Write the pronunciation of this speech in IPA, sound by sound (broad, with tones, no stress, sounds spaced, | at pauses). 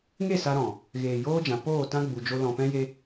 ŋ e˦˨ s a˧ ɾ ɔ̃˨ | ɣ eː˨ j oː˦ d͡ʒ ã˨ p oː˦˨ t ã˦ ɡ͡b u˨ d͡ʒ o˧ l ɔ̃˨ p ɛ̃˦ j e˦